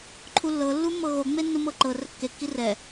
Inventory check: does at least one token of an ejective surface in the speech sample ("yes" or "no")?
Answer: no